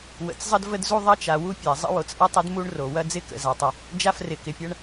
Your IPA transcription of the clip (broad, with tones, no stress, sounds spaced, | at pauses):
w ə̰˩ t͡s zˤ ə˥ d v ə˥ d z u˥ ðˤ ɐ˥ t͡ʃ a˩ w u˥ pʲ a˩ zˤ ə̰˥ w o˩ t͡s ʔ ɐ˥ tˤ ə˥ d m u˥ ɳ r o˩ w ɐ˥ d͡z ɪ˥ k ə̰˩ z a˩ tˤ ə˩ | d͡ʒ a˥ f r ɪ˩ k ɪ˩ pʲ ɐ˥ ɳ